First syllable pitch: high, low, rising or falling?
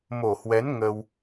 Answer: low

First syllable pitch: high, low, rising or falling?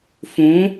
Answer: rising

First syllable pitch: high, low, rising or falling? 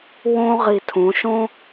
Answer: high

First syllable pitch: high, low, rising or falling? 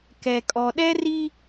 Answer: low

